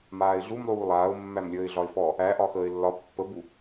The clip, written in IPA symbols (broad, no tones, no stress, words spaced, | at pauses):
maːɪ̯ɮumlˠuː lˠaːʊ̯mːæmlʲəːɪ̯ɮɒɪ̯ fɔ | æʔɒ xəːɪ̯lːɒ pːəbu